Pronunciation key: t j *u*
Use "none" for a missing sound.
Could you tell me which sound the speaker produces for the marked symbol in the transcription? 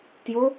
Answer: o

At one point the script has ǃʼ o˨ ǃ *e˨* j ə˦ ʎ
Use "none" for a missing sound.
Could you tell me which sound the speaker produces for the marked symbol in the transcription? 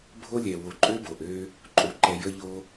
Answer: ɛ˨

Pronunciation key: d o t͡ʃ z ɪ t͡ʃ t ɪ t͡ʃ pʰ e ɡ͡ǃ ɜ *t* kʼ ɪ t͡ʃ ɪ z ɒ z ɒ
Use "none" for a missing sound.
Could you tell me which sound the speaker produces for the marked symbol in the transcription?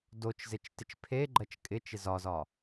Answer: t͡ʃ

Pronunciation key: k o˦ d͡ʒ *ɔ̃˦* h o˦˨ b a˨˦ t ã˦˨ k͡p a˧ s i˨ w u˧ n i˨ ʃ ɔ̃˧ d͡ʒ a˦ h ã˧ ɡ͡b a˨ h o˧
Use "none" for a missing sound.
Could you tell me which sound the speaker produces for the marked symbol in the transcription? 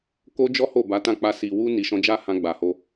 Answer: ɔ˦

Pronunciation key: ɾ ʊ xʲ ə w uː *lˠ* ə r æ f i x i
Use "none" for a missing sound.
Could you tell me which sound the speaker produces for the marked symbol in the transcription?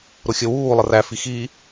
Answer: lˠ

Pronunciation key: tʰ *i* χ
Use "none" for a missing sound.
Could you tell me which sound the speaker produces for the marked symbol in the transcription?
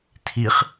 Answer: i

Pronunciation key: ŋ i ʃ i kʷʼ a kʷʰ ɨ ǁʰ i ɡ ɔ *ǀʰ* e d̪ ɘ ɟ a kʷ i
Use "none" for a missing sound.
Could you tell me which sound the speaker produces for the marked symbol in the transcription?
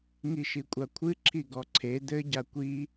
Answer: ǀʰ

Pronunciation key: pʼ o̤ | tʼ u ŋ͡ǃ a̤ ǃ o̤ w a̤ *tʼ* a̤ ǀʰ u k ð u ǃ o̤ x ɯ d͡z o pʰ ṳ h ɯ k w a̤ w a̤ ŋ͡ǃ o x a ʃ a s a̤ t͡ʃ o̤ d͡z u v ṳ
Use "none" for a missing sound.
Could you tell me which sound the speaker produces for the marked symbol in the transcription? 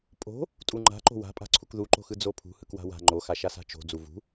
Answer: pʼ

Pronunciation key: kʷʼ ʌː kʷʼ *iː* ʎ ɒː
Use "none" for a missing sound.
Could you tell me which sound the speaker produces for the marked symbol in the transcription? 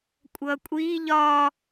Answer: iː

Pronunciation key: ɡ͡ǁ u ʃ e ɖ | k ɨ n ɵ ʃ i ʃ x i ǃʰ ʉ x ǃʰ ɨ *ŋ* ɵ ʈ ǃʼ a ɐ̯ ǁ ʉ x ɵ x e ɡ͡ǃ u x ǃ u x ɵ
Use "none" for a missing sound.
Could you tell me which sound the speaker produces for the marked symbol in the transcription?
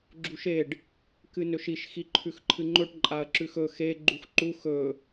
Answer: ŋ͡ǃ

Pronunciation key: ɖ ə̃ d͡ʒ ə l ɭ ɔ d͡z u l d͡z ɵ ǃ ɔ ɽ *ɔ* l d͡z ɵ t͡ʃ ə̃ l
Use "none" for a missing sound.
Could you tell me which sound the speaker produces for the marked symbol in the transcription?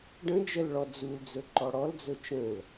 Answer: ɔ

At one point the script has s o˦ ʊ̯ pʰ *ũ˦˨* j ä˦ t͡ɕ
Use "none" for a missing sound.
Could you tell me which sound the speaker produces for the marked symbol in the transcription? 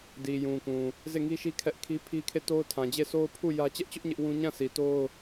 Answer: u˦˨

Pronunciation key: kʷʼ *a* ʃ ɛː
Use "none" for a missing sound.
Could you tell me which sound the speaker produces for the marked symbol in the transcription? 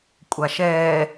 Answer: a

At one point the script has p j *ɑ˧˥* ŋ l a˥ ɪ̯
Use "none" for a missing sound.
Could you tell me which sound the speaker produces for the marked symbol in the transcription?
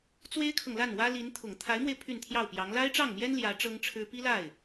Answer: ɑ˧˥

